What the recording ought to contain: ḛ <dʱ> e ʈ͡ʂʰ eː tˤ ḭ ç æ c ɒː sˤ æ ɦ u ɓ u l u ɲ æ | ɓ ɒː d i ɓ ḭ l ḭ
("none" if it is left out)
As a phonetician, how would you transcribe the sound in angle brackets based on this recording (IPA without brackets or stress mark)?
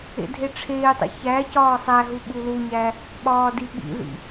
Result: dʱ